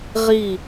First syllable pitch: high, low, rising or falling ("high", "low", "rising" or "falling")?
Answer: falling